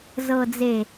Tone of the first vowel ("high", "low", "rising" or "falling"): low